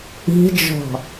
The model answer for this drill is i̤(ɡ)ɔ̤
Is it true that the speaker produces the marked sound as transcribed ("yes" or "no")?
no